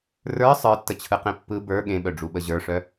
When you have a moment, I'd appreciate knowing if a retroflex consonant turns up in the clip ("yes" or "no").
yes